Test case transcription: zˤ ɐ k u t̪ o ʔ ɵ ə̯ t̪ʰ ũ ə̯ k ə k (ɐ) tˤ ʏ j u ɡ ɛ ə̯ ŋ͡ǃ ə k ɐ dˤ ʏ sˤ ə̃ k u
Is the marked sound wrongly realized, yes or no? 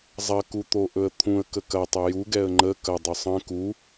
no